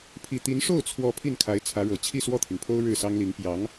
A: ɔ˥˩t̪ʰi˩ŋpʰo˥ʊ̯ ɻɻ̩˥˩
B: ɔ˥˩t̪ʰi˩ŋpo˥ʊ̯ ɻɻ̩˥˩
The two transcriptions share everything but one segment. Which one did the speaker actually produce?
A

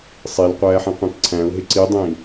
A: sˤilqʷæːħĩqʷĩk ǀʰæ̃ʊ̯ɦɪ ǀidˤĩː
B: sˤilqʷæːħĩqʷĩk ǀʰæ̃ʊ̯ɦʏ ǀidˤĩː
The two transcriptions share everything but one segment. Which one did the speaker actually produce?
A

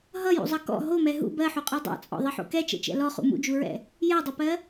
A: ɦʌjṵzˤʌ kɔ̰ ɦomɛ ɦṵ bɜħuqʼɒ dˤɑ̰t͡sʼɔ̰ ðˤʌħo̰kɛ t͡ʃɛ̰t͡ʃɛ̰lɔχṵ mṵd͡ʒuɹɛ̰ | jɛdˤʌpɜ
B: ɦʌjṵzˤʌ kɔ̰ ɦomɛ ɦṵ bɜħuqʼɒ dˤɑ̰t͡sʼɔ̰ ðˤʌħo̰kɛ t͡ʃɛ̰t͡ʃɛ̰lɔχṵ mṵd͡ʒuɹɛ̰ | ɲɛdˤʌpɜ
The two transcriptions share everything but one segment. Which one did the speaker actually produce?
A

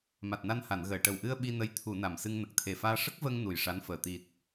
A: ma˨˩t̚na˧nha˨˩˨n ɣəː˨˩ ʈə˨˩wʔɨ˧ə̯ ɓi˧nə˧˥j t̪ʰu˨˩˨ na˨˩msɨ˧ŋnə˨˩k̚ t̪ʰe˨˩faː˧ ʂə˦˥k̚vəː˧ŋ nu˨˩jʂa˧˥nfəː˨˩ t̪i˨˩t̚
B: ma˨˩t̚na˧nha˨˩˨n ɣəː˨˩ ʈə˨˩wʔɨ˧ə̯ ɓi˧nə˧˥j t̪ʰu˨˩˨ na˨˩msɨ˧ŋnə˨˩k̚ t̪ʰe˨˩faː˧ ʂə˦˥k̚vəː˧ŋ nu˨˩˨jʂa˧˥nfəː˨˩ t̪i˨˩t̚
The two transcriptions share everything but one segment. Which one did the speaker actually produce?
A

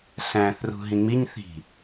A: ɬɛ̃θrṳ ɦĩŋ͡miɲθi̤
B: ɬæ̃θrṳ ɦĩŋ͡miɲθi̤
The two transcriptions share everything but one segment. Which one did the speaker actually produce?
B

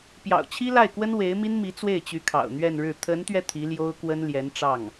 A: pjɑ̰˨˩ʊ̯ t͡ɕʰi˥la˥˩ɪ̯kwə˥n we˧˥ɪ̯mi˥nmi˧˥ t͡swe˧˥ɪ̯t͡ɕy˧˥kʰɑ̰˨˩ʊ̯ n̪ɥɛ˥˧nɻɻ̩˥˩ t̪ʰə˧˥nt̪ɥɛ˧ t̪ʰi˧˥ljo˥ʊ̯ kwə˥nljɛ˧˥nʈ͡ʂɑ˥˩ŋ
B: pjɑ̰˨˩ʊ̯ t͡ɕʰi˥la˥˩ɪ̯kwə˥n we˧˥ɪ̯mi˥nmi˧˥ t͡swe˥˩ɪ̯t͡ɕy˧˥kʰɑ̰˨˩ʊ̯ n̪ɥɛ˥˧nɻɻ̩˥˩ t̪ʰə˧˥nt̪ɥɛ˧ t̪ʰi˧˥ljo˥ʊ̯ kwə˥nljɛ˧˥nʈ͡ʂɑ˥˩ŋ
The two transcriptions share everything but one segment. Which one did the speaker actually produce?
B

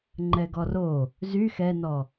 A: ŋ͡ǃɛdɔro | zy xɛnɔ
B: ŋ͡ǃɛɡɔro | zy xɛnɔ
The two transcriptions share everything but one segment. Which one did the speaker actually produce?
B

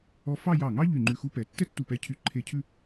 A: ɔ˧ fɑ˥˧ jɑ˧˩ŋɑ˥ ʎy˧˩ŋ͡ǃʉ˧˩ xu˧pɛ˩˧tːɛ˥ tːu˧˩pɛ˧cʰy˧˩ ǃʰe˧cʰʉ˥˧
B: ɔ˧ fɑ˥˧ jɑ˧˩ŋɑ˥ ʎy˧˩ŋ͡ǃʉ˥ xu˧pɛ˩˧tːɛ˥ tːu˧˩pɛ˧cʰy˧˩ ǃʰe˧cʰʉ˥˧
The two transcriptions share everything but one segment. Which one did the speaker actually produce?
A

